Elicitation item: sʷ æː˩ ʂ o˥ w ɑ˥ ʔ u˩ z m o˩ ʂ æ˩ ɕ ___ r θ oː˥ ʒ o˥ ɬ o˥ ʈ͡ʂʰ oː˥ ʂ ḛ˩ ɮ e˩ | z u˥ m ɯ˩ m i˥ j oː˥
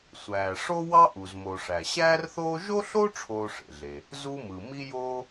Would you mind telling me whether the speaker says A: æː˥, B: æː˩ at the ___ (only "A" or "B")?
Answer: A